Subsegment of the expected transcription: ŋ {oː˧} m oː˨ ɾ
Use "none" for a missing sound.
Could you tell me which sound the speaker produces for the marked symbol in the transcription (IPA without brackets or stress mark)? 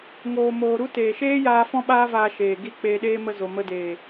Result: oː˨